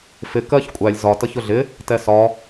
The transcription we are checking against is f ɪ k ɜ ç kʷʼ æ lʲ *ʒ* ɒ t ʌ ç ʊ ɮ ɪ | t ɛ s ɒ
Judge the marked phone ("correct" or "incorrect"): incorrect